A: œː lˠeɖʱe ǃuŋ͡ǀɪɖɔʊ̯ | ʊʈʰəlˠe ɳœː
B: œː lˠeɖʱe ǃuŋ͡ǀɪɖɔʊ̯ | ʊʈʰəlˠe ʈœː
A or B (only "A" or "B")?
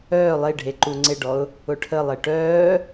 B